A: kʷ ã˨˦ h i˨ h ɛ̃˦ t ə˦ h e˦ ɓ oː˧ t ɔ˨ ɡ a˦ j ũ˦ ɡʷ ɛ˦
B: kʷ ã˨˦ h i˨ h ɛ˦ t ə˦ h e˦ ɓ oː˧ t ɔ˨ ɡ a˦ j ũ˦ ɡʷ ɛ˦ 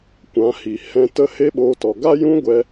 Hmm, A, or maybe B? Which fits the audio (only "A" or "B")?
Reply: A